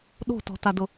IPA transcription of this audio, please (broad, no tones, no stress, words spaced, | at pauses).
ɗo̤tɔ̤tadʊ